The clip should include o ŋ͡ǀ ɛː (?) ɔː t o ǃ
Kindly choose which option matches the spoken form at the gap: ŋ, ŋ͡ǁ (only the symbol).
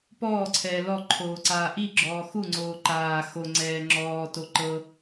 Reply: ŋ͡ǁ